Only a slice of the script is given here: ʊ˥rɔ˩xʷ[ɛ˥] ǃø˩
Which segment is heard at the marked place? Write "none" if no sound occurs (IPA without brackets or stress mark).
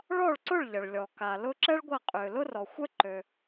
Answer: ɛ˥